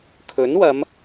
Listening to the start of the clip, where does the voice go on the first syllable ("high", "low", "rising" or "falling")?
rising